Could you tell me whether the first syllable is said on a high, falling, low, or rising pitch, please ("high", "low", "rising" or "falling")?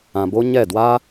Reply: low